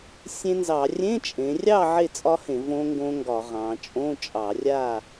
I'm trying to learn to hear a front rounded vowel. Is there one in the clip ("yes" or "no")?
no